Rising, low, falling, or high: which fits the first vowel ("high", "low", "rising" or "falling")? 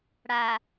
low